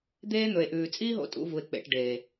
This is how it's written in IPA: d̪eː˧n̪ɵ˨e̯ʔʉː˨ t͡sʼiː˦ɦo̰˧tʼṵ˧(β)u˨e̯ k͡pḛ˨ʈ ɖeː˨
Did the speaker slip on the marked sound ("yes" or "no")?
yes